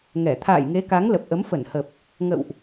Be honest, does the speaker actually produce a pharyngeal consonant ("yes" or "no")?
no